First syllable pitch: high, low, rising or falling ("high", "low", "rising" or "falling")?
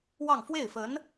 falling